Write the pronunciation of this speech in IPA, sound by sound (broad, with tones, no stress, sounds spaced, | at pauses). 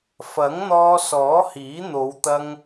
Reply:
f ɐ˨˥ ŋ n̪ ɔː˧ s ɔː˨˥ h iː˨˥ n̪ o˨˧ w t̪ ɐ˧ ŋ